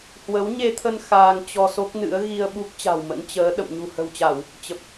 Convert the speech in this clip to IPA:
h w ə˨˦ w ɲ e˧ t̪ʰ ə˧ n x aː˧ ŋ t͡ɕ ɔ˧ s o˦˥ k̚ n ɨ̰˧˥ ə̯ ɣ i˧ ə̯ ɓ u˦˥ k̚ t͡ɕ a̤˨˩ w m ə̰˧˥ n t͡ɕ əː˨˦ ɗ ə̰˧˨ m ɲ ṳ˨˩ h ə̤˨˩ w t͡ɕ a˧˩˨ w | t͡ɕ ə˨˩ p̚

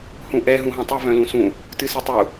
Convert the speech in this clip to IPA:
h ũ ʔ ɛ ɦ ũ ɦ ɔ̃ tˤ ɨ v œ̃ l ũ s ũ | t ɨ s ɨ tˤ u

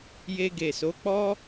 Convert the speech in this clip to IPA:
j e˧ ɡ e˨ s o˨˦ k͡p ɔ˦

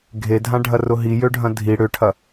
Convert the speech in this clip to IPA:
ɡʱ e dʱ ã ɖʱ ɐ r ʊ ɦ i j ø ɖʱ ɐ̃ dʱ i ɽ ʏ ʈʰ ɐ

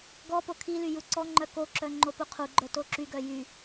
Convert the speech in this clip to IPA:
ɡ ɔ p o kʰ i l y j u ǀ ɔ ŋ͡ǃ œ k o ǁ œ ŋ͡ǃ o p u qʰ u ɡ͡ǃ œ t o ǁ y ɡ œ j y

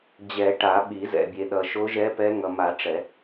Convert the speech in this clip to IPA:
d͡ʑ ɛ˨˩˦ ʈ a˨˩˦ ɓ i˨˩˦ z ɛ̰˨ bʲ e˨ ɗ ʌ˨ ʃ o˧˥ ʒ ɛ˧˥ p ɛ˧˥ ŋ ʌ˨ m a˨˩˦ ʈ͡ʂ ɛ˨˩˦

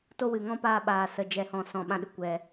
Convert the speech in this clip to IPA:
t o˧ w ɨ˨ ŋ ɔ̃˧ p aː˧ ɓ aː˨ s ə˨ d͡ʒ ɛ˨ h ɔ̃˨ s ɔ̃˧ ɓ ã˦ ɗ ɨ˧ kʷ ɛ˧

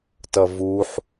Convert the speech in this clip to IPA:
t ʌ v u ħ

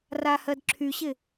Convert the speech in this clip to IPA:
r a h ɜ d ǁʰ y ɕ ɪ

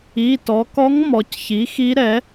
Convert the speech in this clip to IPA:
i˩˧˩ t ɔ˩˧ k ɔ˧˥ ŋ m ɔ˩˧ c ç i˩˥ x i˧˥ ɾ ɛ˩˥

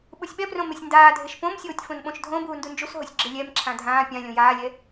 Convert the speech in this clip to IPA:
ɓ u sʲ ɓ ɛ p r õ m e sʲ n d aː dʱ e ʃ p õ m sʲ oː tʲ f õ n ɓ õ ʃ dʱ õ b uː n d u n d͡ʒ u s ɦ o sʲ ɡ͡ǁ ɪ lʲ ɛ m ǁʰ ã dʱ ãː pʲ ã lʲ õ j aː lʲ ɛ

